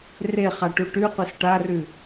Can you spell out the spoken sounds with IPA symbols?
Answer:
r e χ a ʈ u ʈ ʉ qʷ e s ʈ a r ʉ

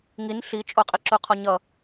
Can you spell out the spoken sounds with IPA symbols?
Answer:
ŋ i n ɬ i t͡ʃʼ o qʼ i ǁ u qʰ ɔ ɲ ʌ

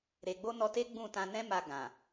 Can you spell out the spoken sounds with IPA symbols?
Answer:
ɾ e˨ ɡ͡b o˧ n ɔ˧ t e˦ ɡ͡b ũ˦˨ t ã˧ n ɛ̃˦ m a˧ ɡ ã˨

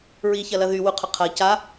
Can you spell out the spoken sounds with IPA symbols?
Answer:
ɹ i ç ɐ l ɐ ð y w u qʰ ʏ qʰ ɐ c a

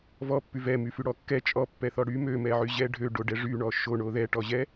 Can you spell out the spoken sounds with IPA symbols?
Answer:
v ɔ pː y v ɛ m y f y ɽ ɔ kː ɛ t͡ʃʼ ɔ pː ɛ θ ɔ ɽ y m ø m ɛ ʕ y ʑ ɛ ɖʱ ø ɖ o ɖ ɛ ʐ y ɳ ɔ ʃ o ɳ o ð ɛ ʈ ɔ ʑ ɛ

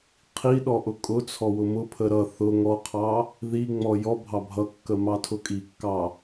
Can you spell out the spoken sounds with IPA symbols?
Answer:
qʰ i ɗ ɔ ʔ ʊ kʼ ʊ t͡sʰ ɔ w ʊ m ʊ pʰ ə ɾ ʌ θ ʊ ŋ ɔ qʰ ɑ | ð i ŋ͡m ɔ j ɔ bʱ ɑ bʱ ʌ kː ə m ɑ tʰ ʊ kʼ i kː ɑ

